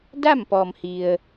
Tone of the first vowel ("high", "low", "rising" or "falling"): falling